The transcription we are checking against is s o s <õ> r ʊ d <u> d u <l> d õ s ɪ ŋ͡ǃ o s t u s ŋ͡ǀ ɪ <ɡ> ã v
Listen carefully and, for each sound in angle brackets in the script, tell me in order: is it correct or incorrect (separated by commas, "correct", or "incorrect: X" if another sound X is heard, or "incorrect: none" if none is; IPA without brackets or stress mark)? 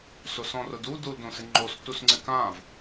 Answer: incorrect: ɔ̃, correct, correct, incorrect: k